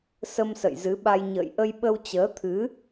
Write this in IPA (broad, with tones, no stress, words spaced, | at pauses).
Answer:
sə˧msə̰˧˨jzɨ˨˦ɓa˧j ɲə̰ː˧˨jʔə˧j ɓə˧wt͡ɕəː˨˦t̪ʰɨ˨˦